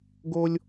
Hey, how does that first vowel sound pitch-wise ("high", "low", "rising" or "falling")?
high